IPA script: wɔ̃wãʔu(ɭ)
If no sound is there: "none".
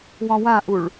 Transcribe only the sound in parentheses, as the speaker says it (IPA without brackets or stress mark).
ɭ